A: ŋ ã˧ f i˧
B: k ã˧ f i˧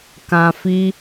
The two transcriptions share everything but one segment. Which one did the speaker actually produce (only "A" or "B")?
B